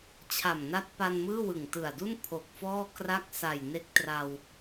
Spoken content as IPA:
t͡ɕʰ a˨˩ m n a˦˥ t̚ p a˧ n m ɯː˥˩ w ɯ˨˩ ŋ t ɯ˨˩ a̯ d u˥˩ n pʰ o˨˩ k̚ f ɔː˥˩ k r a˥˩ k̚ s a˨˩ j n e˦˥ k̚ t r a˧ w

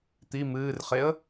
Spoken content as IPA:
t̪ i m ɨː r χ e ə̯

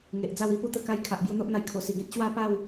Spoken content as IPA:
ŋ e˨ ʔ d͡z a˥˧ w i˧ p u˥˧ t̪ ə˧ k a˧ j kʰ a˨ ʔ b j u˧ n̪ o˦ ʔ n̪ a˧ j kʰ o˨˩ s i˨˩ ɡ ẽ˦ t̚ ɕ w a˥˧ p a˥˧ w

